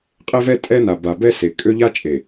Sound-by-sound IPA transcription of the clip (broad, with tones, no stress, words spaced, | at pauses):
qʼe˦vɛ˦ tʼɛ˦na˨ba˨ bɛ˦se˨ kʼø˦ʎa˦t͡ʃʼe˨